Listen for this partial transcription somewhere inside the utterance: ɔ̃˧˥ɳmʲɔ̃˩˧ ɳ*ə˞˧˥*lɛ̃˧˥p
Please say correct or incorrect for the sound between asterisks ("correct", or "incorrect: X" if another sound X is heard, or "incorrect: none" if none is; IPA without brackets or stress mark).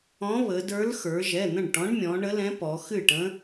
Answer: incorrect: ə˧˥